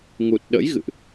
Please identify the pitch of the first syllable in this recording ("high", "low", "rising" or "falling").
low